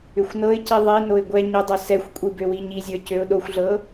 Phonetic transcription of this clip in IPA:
ʏxʷnɤɪ̯ci ðˤinoɪ̯ ɡʷɛ ɲʏdˤo sɛxʷkʷʼi bøwiɲizʲə˞ cøʊ̯ɗoxʷɮɤ

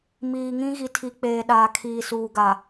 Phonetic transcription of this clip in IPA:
miː˨ŋĩ˦ ɣi˨tʰi˨k͡peː˨ ɗaː˨kʰiː˨suː˨ɡa˨

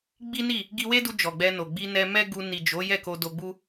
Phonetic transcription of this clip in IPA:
ɡ͡bi˦ni˦˨ | ɡi˧we˦du˧ d͡ʒɔ˨ɡ͡bɛ˧no˨ ɡ͡bi˧ nɛ˧mɛ˦ɡu˧ ni˨d͡ʒo˨˦ jɛ˦˨ko˧do˧ɡ͡bu˦

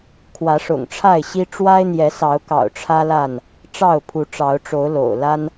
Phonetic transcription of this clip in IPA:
kʰwä˨˦ʂʊ̰˨˩ŋʈ͡ʂʰa˥˨ɪ̯ɕi˦ ʈ͡ʂwa˦ɪ̯n̪jɛ˨˦sɑ˨˦ʊ̯kɑ̰˨˩ʊ̯ ʈ͡ʂʰä˦la˥˨n | ʈ͡ʂɑ˥˨ʊ̯pʰu˨˦ʈ͡ʂɑ˨˦ʊ̯ʈ͡ʂo˨˦ʊ̯ lo̰˨˩ʊ̯ la˦n

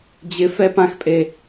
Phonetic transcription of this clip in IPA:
d͡ʑɪ fɛp ãxpʼe

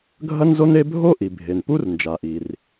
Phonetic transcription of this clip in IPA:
ɡʱɐ˥nzo˥ne˥ bʱo˥ʔi˩ bʱe˩npu˥r nd͡ʒa˩ʔi˩r

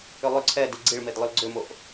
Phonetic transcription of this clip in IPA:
ʏlˠʏ ǀʰɛ diɡ͡ǀiɭmedlˠʏl ɡ͡ǀʏmoʔ

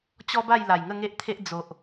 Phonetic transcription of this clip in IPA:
t͡ɕɔ˦ba˥˧j la˨˩jŋə˥˧ŋe˦ʔt̪ʰe˦ʔ d͡zo˨ʔ

